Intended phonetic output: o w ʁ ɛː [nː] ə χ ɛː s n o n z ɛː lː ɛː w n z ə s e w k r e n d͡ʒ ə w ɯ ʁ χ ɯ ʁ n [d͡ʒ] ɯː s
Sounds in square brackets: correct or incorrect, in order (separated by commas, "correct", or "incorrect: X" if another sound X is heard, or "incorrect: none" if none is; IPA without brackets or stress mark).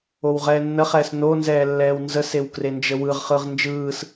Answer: correct, correct